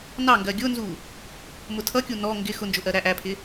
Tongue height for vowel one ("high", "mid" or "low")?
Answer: low